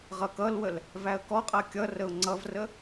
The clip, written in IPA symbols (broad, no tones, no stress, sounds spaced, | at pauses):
ʁ ʌ k ʌ l w ə l | v æ ə̯ k ɔ qʼ ɜ kʲ ʌ r ə ʊ̯ ŋ͡ǀ ʌ v r ə